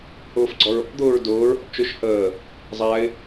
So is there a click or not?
yes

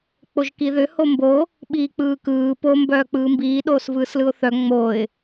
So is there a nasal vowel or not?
no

